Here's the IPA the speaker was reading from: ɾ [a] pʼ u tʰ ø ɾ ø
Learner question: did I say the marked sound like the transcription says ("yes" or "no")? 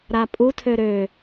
yes